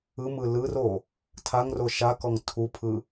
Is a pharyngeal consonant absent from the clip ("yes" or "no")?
yes